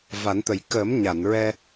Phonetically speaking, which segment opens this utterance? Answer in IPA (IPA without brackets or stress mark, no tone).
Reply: v